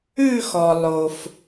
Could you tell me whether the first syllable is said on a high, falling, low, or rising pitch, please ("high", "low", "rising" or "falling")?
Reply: falling